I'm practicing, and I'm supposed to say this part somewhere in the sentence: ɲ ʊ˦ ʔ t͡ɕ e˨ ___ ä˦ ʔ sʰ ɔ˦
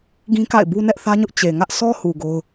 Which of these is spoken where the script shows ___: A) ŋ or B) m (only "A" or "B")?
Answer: A